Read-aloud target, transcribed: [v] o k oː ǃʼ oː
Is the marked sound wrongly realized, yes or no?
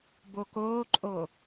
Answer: yes